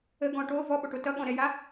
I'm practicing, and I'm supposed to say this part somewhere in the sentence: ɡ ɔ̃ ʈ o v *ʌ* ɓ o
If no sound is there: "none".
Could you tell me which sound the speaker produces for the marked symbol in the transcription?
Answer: ɔ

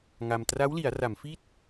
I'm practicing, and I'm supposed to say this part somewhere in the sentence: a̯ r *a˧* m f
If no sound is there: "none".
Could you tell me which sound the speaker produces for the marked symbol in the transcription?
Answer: a˩˦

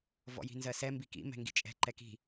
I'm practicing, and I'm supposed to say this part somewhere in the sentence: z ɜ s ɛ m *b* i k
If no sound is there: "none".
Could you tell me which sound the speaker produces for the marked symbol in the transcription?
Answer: b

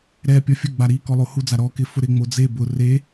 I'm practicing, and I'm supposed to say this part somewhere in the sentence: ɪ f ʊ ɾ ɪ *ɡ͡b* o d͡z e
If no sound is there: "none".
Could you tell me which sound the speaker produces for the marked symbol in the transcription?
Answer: ŋ͡m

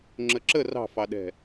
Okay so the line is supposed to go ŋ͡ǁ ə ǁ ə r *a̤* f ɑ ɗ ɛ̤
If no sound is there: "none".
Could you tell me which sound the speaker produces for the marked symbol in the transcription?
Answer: ɑ̤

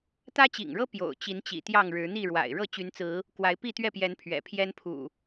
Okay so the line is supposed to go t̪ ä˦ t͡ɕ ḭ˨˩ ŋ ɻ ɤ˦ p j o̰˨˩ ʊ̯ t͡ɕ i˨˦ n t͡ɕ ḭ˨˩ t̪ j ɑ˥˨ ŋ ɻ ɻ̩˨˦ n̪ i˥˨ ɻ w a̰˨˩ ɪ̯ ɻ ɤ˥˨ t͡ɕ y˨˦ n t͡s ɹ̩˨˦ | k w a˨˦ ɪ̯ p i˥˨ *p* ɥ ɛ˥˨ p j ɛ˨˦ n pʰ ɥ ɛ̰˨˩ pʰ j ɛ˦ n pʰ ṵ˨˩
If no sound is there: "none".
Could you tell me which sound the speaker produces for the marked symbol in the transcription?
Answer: t̪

